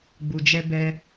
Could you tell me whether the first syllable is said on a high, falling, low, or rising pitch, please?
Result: low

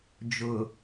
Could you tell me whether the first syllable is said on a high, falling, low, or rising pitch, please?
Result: low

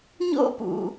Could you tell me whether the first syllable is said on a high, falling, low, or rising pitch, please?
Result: high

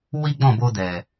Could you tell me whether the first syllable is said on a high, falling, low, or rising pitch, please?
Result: high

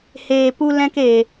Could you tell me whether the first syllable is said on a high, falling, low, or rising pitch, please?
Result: low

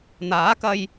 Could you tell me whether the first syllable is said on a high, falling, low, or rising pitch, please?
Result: rising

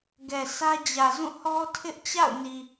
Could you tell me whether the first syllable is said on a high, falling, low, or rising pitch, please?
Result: low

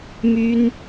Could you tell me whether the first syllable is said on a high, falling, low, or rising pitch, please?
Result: high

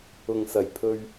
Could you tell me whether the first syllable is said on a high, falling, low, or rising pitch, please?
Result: low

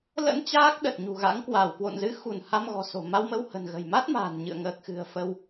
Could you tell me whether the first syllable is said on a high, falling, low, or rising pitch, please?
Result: rising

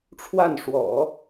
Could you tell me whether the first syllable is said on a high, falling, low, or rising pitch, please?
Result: falling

